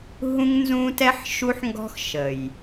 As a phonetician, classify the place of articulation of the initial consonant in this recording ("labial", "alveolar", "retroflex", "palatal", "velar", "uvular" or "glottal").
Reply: glottal